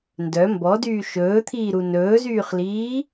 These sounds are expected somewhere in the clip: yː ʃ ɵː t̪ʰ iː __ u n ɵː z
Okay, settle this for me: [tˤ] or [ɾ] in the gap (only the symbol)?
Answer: ɾ